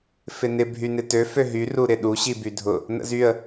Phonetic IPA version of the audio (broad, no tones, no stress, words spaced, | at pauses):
fɪnɪ bʱynɪtø føɦy ruɾɪɗu ɕibydʱʊ | nə̰zyə̯